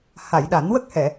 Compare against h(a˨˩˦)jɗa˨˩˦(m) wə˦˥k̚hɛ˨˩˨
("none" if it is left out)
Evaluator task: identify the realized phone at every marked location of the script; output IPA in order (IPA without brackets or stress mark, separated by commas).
a˨˩˨, n